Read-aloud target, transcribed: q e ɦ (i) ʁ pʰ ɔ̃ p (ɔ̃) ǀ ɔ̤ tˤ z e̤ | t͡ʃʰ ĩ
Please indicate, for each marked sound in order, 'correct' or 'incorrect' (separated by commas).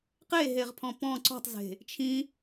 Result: incorrect, correct